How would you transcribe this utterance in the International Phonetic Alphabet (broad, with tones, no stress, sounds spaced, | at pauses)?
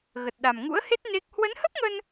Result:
ɣ ə˨˩ t̚ ɗ a˨˩ m ŋ ṵ˧˥ ə̯ h e˦˥ t̚ n e˦˥ k̚ h w ə˨˦ n h ə˦˥ p̚ ŋ ə˧ n